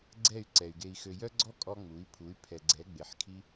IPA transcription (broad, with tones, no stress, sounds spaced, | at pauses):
ɡ͡ǀ ɛ˦˨ y̯ ǀ ɛ˨ y̯ ɡ e˨ i̯ x ø˨ j œ˦ ɡ͡ǀ ɔ˦ kʼ ɔ˧ ŋ͡m u˨˦ i̯ pʰ u˨˦ y̯ pʰ ɛ˨ ɡ͡ǀ ɛ˨˦ ɡ͡b e˨ ħ kʰ i˧